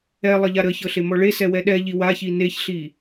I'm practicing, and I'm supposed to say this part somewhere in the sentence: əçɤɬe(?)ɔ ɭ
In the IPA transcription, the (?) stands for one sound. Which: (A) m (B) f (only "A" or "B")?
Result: A